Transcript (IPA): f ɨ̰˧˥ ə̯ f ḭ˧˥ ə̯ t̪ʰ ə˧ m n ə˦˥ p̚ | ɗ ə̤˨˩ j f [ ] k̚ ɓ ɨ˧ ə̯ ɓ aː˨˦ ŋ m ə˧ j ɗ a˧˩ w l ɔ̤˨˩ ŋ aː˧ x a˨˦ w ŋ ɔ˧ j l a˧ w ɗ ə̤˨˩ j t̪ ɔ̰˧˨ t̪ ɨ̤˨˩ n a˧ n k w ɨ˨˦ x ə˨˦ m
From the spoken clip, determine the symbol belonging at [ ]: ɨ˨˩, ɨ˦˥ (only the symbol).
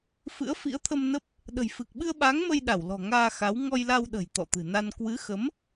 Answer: ɨ˨˩